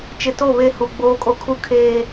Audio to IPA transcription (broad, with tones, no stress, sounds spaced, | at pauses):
t͡ʃ ɪ˨ t o˦˨ β e˦ h u˨ ɡ͡b oː˦ kʼ o˦ kʰ u˦ kʰ eː˨